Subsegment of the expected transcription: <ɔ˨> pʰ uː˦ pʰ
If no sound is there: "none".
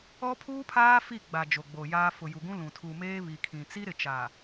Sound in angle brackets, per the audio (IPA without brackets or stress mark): ɔ˦